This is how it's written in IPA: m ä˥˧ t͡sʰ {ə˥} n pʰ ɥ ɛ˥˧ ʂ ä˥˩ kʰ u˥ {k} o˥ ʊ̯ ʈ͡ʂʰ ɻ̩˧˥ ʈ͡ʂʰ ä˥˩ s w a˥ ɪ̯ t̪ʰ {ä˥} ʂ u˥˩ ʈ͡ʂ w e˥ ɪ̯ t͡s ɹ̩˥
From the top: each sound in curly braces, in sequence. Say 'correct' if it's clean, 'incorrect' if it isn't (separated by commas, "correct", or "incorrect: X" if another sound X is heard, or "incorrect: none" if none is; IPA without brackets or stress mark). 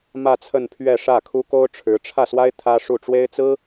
incorrect: ə˥˧, correct, correct